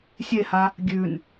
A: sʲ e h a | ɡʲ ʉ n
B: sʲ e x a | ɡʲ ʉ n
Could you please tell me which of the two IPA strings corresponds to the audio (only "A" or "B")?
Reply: A